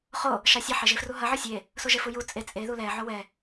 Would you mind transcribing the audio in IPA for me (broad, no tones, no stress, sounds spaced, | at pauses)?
χ o | ʃ ɑ sʲ ɐ ħ e ʒ e f r u ɦ ɐ ʕ ɔ sʲ e | s o ʒ e f u j u t͡sʼ e t͡sʼ e ð u l ɛ ʕ o w ɛ